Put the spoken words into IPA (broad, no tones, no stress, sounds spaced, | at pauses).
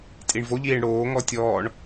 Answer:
tʼ i ɳ v o ʎ iː ɳ ɽ oː ŋ ɔ tʲ ɔː ɳ